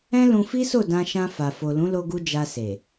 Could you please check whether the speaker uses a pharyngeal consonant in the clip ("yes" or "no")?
no